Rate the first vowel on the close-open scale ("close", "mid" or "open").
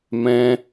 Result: mid